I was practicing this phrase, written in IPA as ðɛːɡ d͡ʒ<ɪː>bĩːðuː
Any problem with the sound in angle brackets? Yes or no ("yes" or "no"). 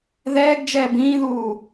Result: yes